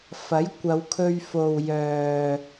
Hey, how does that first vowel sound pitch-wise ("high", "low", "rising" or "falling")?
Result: rising